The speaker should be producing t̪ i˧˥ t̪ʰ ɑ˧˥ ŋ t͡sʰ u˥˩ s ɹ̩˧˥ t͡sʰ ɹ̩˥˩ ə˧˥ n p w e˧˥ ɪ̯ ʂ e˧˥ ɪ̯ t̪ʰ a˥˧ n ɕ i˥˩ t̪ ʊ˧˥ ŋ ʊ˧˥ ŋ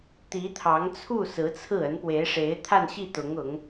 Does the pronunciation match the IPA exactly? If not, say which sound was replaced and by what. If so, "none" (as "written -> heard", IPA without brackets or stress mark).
none